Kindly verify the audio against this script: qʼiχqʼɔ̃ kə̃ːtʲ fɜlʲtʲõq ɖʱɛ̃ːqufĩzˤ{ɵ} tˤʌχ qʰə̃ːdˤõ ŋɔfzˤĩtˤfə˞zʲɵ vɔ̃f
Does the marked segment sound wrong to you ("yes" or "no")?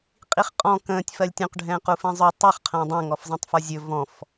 no